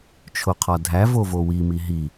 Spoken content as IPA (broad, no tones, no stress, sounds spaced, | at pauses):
t͡ʃʰ o qʰ ɒ dʱ æ v o v o w i m i ɦ i